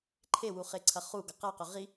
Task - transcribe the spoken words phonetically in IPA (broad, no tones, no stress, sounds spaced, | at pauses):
ǃʰ e w u χ e ǀʰ ɐ χ u ɡ ɐ q a q ɵ ʁ i